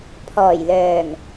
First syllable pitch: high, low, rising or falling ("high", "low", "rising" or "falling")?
low